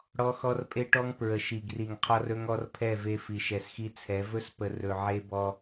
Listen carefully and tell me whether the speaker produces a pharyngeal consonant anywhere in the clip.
yes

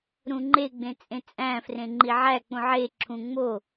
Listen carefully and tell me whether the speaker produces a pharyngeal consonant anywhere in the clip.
yes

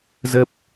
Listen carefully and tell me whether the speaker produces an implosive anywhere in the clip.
no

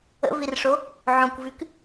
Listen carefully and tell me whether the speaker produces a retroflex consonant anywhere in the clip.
yes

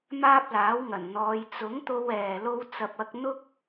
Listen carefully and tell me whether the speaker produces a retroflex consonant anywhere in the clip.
no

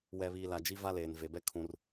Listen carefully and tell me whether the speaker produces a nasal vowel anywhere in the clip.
yes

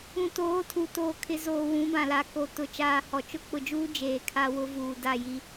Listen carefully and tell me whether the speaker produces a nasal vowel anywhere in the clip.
yes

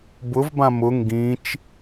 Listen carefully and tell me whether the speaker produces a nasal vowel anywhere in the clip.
yes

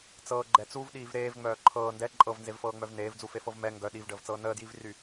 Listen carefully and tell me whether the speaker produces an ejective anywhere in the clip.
yes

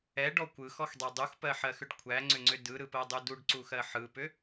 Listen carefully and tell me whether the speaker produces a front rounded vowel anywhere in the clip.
yes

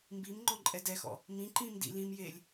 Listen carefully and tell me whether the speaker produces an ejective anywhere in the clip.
yes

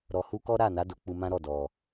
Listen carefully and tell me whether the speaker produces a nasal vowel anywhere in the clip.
yes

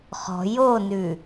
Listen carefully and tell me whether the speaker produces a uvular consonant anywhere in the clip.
yes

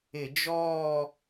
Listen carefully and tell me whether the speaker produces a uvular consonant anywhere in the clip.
no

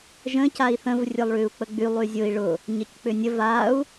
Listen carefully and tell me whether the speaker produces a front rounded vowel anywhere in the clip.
yes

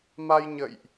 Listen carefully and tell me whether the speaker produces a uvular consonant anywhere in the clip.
no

